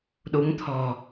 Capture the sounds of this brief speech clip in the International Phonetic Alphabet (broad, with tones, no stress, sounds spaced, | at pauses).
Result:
ɗ u˨˦ ŋ t̪ʰ ɔ̤˨˩